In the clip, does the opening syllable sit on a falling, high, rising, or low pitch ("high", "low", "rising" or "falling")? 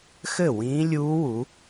falling